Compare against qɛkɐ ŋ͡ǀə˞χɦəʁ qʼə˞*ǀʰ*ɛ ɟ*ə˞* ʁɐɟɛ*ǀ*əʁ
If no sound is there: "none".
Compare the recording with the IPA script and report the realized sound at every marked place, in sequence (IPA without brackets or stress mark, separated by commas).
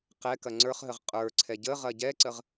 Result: ǀʰ, ə, ǀ